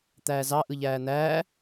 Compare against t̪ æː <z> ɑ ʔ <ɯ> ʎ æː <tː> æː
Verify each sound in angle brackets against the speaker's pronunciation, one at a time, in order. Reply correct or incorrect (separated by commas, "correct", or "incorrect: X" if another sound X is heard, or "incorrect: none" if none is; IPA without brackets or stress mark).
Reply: correct, correct, incorrect: n̪